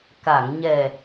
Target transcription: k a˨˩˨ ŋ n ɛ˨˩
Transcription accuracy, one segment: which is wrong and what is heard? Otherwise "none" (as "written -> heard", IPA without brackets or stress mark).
n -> ɲ